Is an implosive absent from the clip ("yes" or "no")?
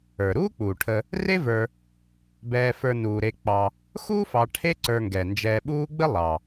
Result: no